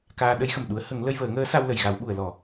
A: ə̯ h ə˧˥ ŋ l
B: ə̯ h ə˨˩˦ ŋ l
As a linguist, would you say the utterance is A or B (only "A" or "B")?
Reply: B